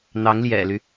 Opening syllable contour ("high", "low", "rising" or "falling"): rising